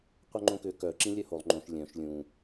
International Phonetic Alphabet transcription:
qʷœŋ͡ǃõkʏ kœ ǁĩlʲœholˠ ŋ͡ǃõʃ lʲœ̃ʃ lʲũ

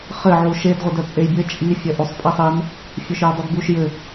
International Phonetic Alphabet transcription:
χɘ ʕuʃed ʁʷɘdœt͡sʼejbʲɘ t͡ʃʼi fʲœʔusˤpʼisˤin | fʲœʃjudˤudbuʃ jɘ

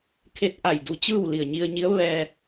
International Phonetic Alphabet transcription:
kʰe˧˥t̚ʔa˧˩jdu˧t͡ɕɯː˥˨w li˧˩ə̯ɲi˧ə̯ɲi˧˥ə̯ ʋɛː˧

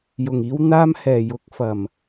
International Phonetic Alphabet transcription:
jʊ˨˩ŋiː˧w n̪aː˧mhɛː˨˩ jʊ˨˥k̚fɐ˨˩m

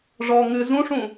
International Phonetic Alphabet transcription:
ʐɔ ŋɨ zũʂũ

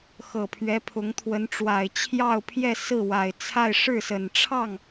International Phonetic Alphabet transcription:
xɤ˨˩pʰɥɛ˧˥pʰʊ˧˥ŋt̪ʰwə˧˥n ʈ͡ʂwa˨˩ɪ̯t͡ɕʰjɑ˥˧ʊ̯pʰjɛ˥˧ sɹ̩˥˩wa˨˩ɪ̯t͡sʰa˥˧ɪ̯ ʂɻ̩˥˩sə˨˩n ʈ͡ʂʰɑ˥˩ŋ

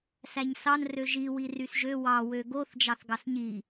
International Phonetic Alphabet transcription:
sæɲsɑn røʒi wirysʒø wɑ wøɡoθ d͡ʒɑθɡɑsɲi

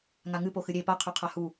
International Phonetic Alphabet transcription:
ŋaŋɨ poxɨɾʲe pa qʰʉqʰahu

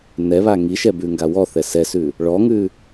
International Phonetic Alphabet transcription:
nɛβa ŋiʃɛbʉŋɡa wɔθɛ sɛsʉ | ɭɔŋʉ

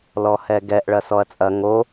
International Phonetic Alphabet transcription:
lɔhɛɡɛʔ ɭɐsɔɐ̯t͡sʼɐ ŋo

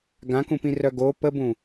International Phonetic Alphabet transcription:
ɡãkũpĩrœ ɡo pəbũ

